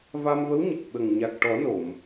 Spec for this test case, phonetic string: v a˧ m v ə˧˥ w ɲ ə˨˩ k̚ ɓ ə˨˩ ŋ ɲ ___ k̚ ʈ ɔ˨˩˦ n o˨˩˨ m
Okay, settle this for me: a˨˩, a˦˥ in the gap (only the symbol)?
a˨˩